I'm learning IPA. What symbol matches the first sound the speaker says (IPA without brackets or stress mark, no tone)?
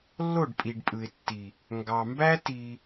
lː